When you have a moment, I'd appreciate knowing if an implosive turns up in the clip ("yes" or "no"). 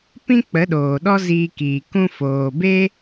yes